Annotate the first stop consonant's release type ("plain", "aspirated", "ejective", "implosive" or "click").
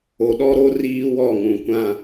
implosive